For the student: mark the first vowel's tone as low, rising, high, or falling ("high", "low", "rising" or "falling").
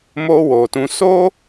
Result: high